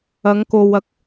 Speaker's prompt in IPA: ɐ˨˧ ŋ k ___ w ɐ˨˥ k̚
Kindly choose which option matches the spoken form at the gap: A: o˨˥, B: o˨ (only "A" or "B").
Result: B